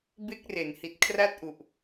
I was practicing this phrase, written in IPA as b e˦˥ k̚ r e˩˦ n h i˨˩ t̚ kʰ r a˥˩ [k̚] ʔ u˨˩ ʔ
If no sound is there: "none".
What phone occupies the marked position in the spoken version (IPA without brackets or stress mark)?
t̚